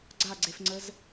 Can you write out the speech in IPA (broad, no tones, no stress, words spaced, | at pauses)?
ɡ͡ǀaɡ͡ǀefŋ͡ǀəz